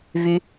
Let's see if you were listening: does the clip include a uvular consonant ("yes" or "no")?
no